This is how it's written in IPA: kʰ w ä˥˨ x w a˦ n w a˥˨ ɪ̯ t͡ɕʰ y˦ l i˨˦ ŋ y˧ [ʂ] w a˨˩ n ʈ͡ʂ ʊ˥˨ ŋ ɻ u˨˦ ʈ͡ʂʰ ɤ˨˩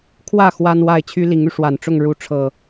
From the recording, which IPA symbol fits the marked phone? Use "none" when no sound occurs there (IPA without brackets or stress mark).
ʂ